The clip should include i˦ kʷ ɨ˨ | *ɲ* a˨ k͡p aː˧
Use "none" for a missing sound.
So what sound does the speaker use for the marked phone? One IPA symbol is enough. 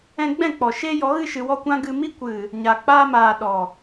ɲ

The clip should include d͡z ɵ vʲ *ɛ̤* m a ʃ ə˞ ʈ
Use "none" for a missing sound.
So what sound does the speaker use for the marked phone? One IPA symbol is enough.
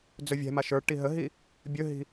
ɛ̤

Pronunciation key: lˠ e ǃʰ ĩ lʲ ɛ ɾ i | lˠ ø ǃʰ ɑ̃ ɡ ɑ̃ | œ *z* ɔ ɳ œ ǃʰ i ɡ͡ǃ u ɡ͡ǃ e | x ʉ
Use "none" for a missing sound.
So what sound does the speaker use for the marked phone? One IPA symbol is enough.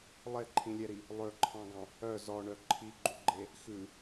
z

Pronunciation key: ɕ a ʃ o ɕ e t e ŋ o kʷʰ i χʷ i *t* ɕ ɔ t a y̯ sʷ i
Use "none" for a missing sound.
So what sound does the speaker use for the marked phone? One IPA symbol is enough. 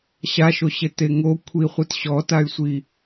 t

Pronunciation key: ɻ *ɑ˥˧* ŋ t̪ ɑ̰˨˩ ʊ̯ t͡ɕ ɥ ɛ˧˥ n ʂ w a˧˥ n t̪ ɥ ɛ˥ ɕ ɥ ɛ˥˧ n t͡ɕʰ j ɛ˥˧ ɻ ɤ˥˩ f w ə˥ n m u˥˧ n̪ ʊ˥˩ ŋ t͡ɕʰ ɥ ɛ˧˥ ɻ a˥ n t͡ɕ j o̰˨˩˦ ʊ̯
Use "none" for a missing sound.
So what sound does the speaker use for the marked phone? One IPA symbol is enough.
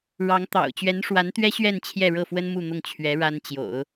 ɑ˧˥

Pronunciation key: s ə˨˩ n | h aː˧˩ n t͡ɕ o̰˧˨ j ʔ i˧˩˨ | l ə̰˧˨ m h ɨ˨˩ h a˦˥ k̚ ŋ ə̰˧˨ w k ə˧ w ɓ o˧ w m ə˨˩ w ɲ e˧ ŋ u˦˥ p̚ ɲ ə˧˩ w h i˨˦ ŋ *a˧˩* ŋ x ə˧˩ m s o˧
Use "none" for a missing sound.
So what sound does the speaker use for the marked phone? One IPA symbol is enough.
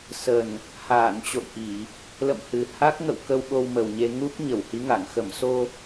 a˧˩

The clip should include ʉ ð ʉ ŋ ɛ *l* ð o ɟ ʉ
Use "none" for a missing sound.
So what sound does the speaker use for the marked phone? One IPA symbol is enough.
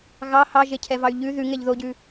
ʎ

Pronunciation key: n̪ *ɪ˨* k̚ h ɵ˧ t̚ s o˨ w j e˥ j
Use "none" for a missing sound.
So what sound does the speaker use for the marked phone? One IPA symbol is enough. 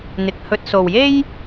ɪ˨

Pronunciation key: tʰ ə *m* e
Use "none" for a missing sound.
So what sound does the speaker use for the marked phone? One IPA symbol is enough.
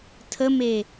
m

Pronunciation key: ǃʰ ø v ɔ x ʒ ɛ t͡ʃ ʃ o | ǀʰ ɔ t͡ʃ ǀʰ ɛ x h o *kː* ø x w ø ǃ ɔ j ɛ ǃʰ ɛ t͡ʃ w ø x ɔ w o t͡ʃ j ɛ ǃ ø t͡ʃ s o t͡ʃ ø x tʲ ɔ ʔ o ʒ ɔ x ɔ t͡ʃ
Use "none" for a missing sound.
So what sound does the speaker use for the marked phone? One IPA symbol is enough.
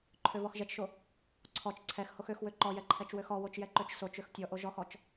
x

